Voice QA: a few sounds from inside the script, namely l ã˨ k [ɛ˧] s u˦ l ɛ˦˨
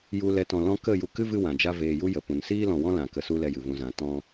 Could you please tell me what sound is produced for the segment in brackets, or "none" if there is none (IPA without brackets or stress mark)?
ə˧